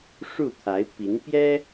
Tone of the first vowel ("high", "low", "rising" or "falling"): falling